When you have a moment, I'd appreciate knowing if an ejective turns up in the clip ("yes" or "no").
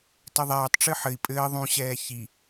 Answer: yes